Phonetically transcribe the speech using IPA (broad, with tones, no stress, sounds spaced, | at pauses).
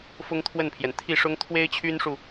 f ʊ˥ ŋ t̪ʰ w ə˥˩ n pʰ j ɛ˩ n t̪ʰ i˥˩ ʂ ʊ˥ ŋ t̪ʰ w e˥ ɪ̯ t͡ɕʰ y˥ n ʂ u˨